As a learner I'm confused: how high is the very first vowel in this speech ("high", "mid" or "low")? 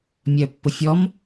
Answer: mid